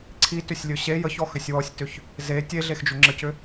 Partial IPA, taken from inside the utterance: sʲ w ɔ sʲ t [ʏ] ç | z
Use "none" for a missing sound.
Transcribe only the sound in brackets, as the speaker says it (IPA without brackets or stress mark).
ʏ